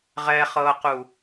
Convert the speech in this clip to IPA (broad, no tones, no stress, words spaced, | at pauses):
ʁɛχɤqu